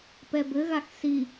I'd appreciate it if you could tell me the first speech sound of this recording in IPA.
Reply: p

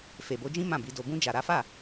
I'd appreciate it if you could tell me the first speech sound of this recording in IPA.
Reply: f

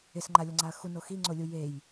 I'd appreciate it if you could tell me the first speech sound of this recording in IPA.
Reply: ɪ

